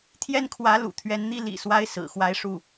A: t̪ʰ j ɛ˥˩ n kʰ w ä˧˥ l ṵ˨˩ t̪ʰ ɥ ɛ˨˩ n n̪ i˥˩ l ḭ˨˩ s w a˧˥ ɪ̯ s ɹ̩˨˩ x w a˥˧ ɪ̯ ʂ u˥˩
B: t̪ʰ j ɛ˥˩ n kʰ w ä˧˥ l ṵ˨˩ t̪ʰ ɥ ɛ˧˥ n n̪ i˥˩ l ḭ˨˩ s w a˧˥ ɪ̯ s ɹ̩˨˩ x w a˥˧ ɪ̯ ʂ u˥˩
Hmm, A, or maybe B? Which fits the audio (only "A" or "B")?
B